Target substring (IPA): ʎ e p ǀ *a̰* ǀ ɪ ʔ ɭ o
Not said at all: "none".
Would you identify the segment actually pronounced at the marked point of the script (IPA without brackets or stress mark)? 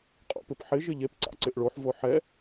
a̰